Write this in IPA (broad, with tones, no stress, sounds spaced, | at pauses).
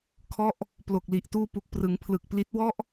kʰ ɔ˦˥ ʔ | p l o˨˩ k̚ l i˨˩ ʔ t uː˧ p u˨˩ k̚ p r ɯ˩˦ ŋ pʰ l ɯ˨˩ k̚ p l i˦˥ t̚ w ɔ˥˩ ʔ